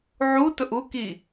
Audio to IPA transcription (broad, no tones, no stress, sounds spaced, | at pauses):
ʕ u t ʊ ʔ u k i